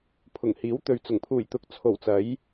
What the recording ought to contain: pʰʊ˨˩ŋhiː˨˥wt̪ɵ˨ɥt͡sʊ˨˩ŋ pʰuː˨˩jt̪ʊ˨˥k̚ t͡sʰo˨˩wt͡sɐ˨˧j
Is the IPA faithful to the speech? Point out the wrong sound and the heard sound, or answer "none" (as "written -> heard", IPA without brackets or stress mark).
none